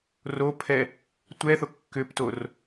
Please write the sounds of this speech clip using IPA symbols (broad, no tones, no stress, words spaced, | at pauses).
ropʰɛ | tʷɛθo kːʏptor